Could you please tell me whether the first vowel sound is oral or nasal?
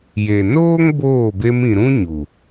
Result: oral